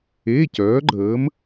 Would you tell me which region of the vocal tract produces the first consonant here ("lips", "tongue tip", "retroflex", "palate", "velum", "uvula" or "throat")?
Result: palate